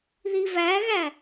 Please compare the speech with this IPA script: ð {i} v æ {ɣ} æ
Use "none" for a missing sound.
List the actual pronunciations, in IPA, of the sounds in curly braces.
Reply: i, ɣ

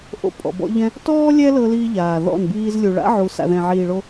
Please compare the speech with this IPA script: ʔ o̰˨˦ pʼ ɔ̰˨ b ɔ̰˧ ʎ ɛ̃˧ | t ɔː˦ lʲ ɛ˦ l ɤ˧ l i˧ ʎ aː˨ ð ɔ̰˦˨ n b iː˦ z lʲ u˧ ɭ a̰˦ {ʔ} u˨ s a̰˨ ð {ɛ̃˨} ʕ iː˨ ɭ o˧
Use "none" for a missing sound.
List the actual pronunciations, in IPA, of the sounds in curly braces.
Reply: ʕ, ɛ̃˨

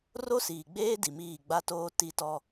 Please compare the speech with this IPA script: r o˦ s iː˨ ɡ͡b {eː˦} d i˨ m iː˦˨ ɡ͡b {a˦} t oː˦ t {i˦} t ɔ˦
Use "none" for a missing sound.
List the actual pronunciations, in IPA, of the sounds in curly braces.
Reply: eː˦, a˦, i˦

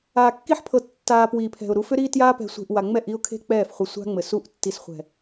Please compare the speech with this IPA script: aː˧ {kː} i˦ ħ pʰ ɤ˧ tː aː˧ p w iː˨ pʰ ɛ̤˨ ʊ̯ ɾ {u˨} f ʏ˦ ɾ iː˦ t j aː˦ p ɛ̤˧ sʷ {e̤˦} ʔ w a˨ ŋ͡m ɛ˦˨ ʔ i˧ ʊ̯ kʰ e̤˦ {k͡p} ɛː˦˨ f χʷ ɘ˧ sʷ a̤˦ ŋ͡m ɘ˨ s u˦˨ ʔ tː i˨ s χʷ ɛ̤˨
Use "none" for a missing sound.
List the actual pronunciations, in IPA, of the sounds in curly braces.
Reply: kː, u˧, e̤˧, k͡p

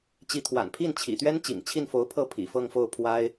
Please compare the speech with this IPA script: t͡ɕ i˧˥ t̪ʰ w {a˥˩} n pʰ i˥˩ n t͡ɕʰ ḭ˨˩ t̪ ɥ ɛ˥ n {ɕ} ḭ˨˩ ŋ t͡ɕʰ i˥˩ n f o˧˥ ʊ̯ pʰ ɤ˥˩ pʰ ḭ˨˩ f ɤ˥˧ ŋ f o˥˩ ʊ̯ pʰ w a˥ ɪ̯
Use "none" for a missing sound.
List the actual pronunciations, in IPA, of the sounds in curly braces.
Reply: a̰˨˩, t͡ɕ

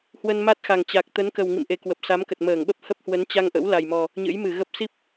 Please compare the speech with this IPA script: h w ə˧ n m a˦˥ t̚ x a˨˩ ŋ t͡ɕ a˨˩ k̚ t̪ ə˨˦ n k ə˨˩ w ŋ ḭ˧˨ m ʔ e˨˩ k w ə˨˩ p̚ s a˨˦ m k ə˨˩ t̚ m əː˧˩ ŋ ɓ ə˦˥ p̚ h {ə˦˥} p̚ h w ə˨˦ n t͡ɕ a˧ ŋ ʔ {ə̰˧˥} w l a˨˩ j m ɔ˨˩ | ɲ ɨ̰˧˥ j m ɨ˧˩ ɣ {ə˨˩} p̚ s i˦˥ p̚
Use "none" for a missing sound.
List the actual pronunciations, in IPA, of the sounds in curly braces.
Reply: ə˦˥, ə̰˧˥, ə˦˥

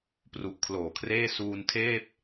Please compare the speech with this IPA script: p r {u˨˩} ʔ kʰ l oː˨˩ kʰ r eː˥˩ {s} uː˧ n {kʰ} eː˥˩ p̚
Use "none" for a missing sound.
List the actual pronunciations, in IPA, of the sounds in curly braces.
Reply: u˨˩, s, tʰ

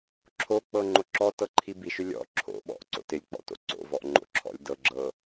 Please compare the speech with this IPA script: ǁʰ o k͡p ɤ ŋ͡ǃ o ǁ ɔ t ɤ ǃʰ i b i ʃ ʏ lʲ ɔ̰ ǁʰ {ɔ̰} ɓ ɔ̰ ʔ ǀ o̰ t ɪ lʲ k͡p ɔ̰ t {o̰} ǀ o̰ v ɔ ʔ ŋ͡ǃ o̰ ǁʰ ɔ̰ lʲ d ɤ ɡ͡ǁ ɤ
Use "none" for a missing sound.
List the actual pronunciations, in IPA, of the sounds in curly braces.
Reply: o̰, o̰

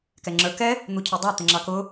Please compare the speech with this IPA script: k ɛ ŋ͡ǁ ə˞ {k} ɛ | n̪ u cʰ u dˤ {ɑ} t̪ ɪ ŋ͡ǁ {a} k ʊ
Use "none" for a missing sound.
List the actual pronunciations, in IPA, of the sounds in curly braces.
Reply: k, ɑ, ɑ

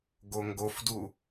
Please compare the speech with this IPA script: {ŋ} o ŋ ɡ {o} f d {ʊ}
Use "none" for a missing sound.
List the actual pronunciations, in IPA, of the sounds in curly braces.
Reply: ɡ, o, u

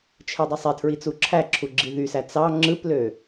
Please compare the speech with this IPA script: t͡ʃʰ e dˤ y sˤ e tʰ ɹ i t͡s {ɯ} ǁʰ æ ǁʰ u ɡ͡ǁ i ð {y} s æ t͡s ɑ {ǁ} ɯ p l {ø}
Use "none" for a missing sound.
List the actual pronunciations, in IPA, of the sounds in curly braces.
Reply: u, y, ŋ͡ǁ, ø

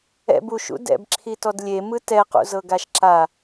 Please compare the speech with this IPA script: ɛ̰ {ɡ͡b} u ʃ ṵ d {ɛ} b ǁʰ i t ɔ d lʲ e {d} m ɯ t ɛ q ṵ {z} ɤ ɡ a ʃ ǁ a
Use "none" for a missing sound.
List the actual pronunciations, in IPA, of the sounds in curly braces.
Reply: b, ɛ̰, none, z

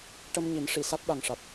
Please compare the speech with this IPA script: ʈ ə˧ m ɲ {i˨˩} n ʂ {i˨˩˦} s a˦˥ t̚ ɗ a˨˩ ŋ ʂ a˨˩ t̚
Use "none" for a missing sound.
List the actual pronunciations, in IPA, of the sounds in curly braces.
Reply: i˨˩˦, i˨˩˨

